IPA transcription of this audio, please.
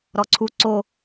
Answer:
ɾ ɔ ǀʰ u ǀ o

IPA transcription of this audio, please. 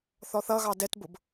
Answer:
θ ɔ θ ʌ ɣ ɑ d ɛ t b ʊ b

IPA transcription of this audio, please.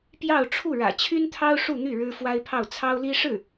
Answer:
p j ɑ˥˧ ʊ̯ ʈ͡ʂʰ u˥˩ ɻ ä̰˨˩ t͡ɕʰ y˥ n t̪ʰ ɑ˥ ʊ̯ ʂ u˥˧ n̪ y˥˩ ɻ ɻ̩˥ f w a˥ ɪ̯ pʰ ɑ˥˩ ʊ̯ t͡sʰ ɑ˥ ʊ̯ l i˥ ʂ ɻ̩˥˩

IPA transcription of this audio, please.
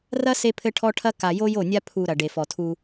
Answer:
r ɐ˦ s e˦ pʰ ɘ˦ ʈʰ ɔ˦ ʈʰ ɐ˦ k a˨ j o˦ j o˦˨ nʲ a˦ pʰ u˨ ɾ ɐ˨ ɖ e˨ f ɔ˨ tʰ u˦

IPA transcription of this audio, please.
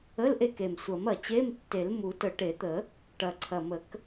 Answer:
ə˧˥˧ l ʔ e˦˨ k e˨˩ m sʷ ɐ˨˩˦ m ɐ˨˩ t͡ɕ e˧˥˧ m tː e˨˩˦ l m u˨˩˦ t ə˨˩˦ ʈ e˨˩˦ t̪ ə˨˩˦ | ʈ ɐ˨˩ ǀʰ ɐ˨˩ m ə˨˩˦ k

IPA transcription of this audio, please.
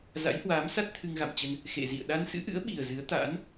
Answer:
z a̰˧˥ j h w aː˨˦ m s a˦˥ t̚ t̪ʰ ɨ˧ ŋ ɣ a̰˧˨ m t͡ɕ ə˧ n | x ḛ˧˨ z ḭ˧˨ ə̯ ɗ a˧ n s ɨ̰˧˥ ʔ ɨ̰˧˥ ə̯ ɓ i˨˩ ə̯ z ɨ˨˦ ə̯ t̪ a̰ː˧˥ n

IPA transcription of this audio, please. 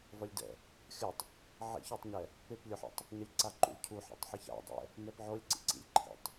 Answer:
v ʌ lʲ d ɛ̰ | xʲ ʌ tˤ | ʕ ḭ ç u tˤ ɲ ɛ | p e p lʲ o ħ a̰ tˤ | ɲ ʌ lʲ ǀ a ǃ ṵ lʲ cʰ u ħ a̰ tˤ ħ ɯ ç a̰ dˤ ɛ̰ | n ɛ p ʕ o lʲ ǀ ḭ ǀ ḭ lʲ ǃʰ ḭ tˤ

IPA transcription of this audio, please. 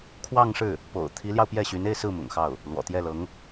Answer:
kʰ w ɑ˥˧ ŋ ʂ ɻ̩˥˩ | p o̰˨˩ ʊ̯ t̪ʰ i˧˥ l j ɑ˧ ʊ̯ p j ɛ˥˩ ɕ y˧˥ n e˥˧ ɪ̯ s ɹ̩˥˩ m ʊ̰˨˩ ŋ x ɑ˥˩ ʊ̯ | l w ɔ̰˨˩ t̪ j ɛ˥˩ l ɤ˧˥ ŋ

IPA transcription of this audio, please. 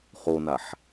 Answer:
χ o n a ħ

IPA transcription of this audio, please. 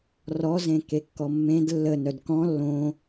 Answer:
r ɔ z ẽ k e kː ɔ mː ẽ d lː ə n œ d k ɔ̃ lː õ

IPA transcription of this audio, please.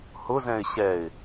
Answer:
h ʊ z ɛ̃ ɪ̯ ɕ ɛ ɪ̯

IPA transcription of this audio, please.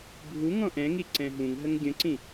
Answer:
bʱ u ŋ ɔ̃ ʔ ɛ̃ ŋ i ǀ ɛ̃ ɦ ũ ŋ ɦ ə ŋ ɡʲ ə̃ ǀ ĩ

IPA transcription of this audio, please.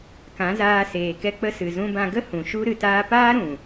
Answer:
k ã˨˦ z aː˧ s eː˨ k ɛ˧ k͡p ə˧ s ɨ˨ z ũ˧ b ã˧ ɡ ə˦ h ũ˨ ʃ u˦ ɾ ɨ˨ t aː˧ p aː˦ ɾ ũ˨

